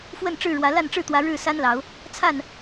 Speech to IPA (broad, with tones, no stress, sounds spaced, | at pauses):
f w ə˥˨ n ʈ͡ʂ ɻ̩˥˨ ɻ w ä˨˦ l a˥˨ n ʈ͡ʂ ɻ̩˥˨ t̪ w ä˨˦ ɻ ɻ̩˥˨ s a˦ n l ɑ˨˦ ʊ̯ | t͡sʰ a˥˨ n